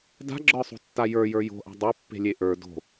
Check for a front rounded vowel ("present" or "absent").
absent